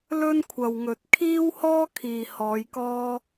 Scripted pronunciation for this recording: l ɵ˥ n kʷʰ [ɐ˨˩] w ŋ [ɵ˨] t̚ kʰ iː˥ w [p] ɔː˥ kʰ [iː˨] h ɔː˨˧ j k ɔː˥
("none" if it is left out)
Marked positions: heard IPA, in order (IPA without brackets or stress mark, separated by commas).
ɐ˨, ɵ˨, h, iː˨